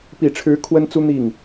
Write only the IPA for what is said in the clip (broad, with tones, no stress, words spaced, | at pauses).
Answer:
pi˨˩ʈ͡ʂʰɻ̩˧˥ kʰwə˥nt͡su˥ n̪i˥˩ŋ